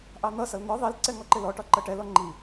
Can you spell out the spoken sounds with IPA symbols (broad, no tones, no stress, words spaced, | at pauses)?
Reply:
ʔɑn̪ʌsʌl n̪ɒ ðˤilǀɛ ŋɔǃɪlɔʈɒ ǃʌʈɛlɔ ŋ͡ǃi